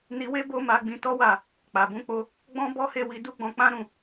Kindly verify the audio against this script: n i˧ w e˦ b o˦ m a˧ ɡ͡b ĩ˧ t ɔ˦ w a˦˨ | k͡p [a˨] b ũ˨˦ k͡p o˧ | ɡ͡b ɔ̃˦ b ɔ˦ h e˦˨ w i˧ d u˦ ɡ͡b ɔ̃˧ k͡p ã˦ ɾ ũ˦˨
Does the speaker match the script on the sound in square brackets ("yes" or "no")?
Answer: yes